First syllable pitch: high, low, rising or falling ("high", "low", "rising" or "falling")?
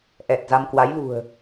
low